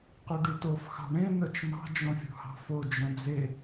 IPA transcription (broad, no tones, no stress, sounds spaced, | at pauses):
q ɵ ɖ y t o f x ɑ̤ ɳ ẽ n̪ œ t͡ʃ n̪ ɑ̤ d͡ʒ õ fʲ ṳ h ɑ̤ f o d͡ʒ œ̃ d͡z e